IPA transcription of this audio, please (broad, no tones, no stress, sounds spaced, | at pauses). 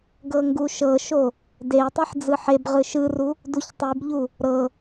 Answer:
ɡ ɤ ŋ ɡ u ʃ ɤ ʃ o | d e i̯ tˤ i ħ d͡z ɯ ħ e b ʁ ɯ ʃ ɯ r u | d u ç tˤ i b ʎ u | ɾ ɤ